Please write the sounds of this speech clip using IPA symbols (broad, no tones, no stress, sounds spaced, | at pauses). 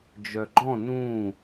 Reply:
d͡ʒ œ ɡ͡ǃ ɔ̃ n ũ